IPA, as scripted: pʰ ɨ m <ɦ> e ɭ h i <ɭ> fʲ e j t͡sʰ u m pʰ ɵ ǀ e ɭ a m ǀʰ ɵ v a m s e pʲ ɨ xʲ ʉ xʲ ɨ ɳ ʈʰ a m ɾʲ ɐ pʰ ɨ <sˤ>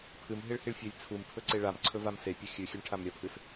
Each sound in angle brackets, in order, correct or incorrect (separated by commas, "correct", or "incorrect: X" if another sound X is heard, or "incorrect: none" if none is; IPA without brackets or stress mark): correct, correct, incorrect: s